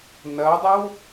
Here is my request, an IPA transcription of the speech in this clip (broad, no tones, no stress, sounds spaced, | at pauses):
n ɐ dˤ ə w